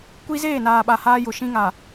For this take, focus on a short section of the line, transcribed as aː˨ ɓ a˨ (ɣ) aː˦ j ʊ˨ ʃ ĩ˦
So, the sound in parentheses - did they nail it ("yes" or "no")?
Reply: no